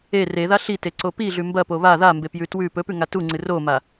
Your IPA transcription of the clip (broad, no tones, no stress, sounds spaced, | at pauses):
e r e ð a ɬ i t e ǀ o p i ɮ ʉ m b ɐ p o β a ð a m b e p j ʉ t w ʉ p ɵ p ʉ ŋ a t u ŋ͡ǀ ɨ r o m a